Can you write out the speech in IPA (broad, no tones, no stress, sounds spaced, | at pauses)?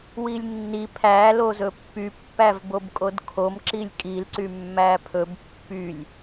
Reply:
w i lʲ nː i pʰ æ l o z ɵ pː y pː æ v b o b kʼ o d kʰ o m ǁ i lʲ kʼ i l ǀ y mː æ pʰ ɵ b pː y lʲ